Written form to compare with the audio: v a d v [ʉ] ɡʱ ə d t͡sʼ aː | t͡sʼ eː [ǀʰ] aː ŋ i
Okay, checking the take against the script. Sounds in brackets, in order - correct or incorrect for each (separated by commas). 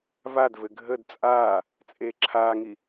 incorrect, incorrect